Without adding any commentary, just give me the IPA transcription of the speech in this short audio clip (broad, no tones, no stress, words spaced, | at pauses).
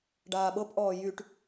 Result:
ɖaːɓɤpʔɔː jyʈ